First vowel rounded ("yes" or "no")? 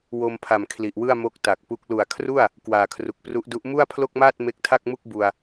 yes